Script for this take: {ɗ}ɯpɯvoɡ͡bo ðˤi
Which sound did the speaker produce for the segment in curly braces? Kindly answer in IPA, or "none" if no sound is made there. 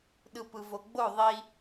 ɗ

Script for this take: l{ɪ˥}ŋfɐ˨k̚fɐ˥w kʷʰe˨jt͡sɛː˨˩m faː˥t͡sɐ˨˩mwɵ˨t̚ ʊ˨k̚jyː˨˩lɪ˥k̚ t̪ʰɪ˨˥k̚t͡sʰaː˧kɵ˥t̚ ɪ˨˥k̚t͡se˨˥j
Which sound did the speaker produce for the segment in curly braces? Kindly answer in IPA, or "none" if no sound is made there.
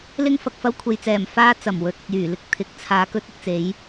ɪ˥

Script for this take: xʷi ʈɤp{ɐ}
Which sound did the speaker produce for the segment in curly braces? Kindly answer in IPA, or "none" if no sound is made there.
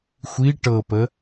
ə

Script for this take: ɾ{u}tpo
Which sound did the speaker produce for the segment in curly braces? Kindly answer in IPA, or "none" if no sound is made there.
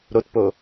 o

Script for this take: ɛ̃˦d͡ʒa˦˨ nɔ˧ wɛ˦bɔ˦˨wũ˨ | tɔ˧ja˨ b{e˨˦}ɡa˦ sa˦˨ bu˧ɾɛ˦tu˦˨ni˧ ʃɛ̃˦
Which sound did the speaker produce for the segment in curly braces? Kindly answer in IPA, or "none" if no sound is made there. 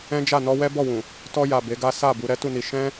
e˨˦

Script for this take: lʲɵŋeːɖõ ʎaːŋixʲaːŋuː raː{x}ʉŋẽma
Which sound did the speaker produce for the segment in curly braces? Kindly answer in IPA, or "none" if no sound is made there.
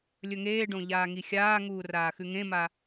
x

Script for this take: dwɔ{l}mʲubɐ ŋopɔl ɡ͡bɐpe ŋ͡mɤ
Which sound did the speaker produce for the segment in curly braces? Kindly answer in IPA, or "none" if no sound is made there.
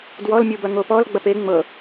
l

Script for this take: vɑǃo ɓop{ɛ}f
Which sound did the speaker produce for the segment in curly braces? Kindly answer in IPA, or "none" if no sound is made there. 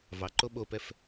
ɛ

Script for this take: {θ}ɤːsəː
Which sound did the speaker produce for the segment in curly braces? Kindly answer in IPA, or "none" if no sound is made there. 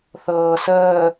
θ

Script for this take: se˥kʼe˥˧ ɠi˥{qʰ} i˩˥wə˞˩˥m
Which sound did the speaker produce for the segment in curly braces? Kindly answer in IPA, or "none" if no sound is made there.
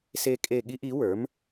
ʔ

